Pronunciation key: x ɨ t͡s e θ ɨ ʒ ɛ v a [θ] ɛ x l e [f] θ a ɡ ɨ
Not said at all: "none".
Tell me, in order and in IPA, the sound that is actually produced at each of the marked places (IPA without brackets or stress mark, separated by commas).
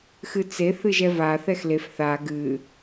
θ, f